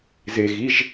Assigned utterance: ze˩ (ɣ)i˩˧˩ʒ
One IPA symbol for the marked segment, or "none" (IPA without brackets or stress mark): ɣ